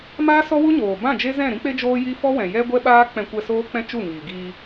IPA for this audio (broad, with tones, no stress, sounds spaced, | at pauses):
m aː˦ s ɔ˦ w u˦ ɲ oː˨ b ã˦˨ d͡ʒ e˦ z ɛ̃˦˨ ɾ ĩ˦ k͡p e˦ d͡ʒ oː˦ j i˦ f ɔ˦ w ɛ̃˨ j ɛ˦ ɡʷ ɛ˦ ɓ aː˦ k͡p ɛ̃˧ kʷ ɛ˧ s oː˦ k͡p ɛ̃˦ t͡ʃ u˦˨ ŋ iː˨ ɡ iː˧